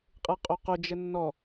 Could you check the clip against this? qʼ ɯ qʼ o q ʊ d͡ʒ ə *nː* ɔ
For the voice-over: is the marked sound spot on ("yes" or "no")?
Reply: yes